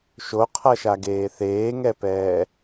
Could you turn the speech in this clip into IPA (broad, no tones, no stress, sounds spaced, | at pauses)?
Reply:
ʃ o qʰ ʌ ʃ a ɡ eː θ eː ŋ ɛ p ɛː